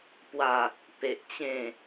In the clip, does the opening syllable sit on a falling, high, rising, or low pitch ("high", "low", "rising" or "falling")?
falling